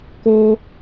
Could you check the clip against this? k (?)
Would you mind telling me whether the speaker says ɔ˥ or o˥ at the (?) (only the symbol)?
o˥